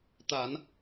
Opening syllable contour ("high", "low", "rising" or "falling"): low